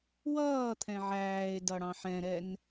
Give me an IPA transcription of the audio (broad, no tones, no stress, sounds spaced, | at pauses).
w ʌː t̪ʰ ɛ̃ ʕ æː e̯ d ʌ ɽ ɑ̃ ħ ɛ̃ ɾ ɛ n